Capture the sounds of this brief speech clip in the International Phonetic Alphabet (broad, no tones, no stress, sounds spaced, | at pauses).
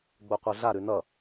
ɡ͡b o qʷ ə˞ ɮ a ɾ ʉ n ʌ